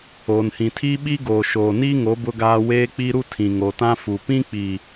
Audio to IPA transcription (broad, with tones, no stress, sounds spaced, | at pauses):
oː˨ n h ĩ˨ tʰ iː˦ ɓ i˦ ɡ oː˨ ʃ oː˨ n iː˦ ŋ o˨˦ b ʊ˦ ɡ aː˦ w eː˦ k͡p i˦ ɾ u˦ tʰ ĩ˨ ŋ o˨ t ã˦ f u˨ p ĩ˦ k͡p i˨